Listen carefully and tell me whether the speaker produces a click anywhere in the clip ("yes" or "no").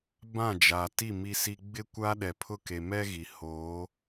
no